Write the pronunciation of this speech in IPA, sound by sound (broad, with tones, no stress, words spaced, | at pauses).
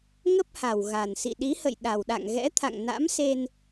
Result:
ŋə˦˥p̚ha˨˩wɣa˨˩nsḭ˧˨ ɗi˨˦hə̰˧˨j ɗa˨˩wɗa̰˧˨ŋɣɛ̰˧˥t̪ʰa̰˧˨ŋ na̰˧˥mse˧n